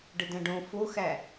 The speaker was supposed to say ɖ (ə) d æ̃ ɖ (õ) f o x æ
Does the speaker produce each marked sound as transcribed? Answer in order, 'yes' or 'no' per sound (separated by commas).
yes, yes